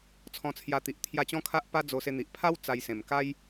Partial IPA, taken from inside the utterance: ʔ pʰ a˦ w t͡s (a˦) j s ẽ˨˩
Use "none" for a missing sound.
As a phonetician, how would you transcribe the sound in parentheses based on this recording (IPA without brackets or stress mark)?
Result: a˧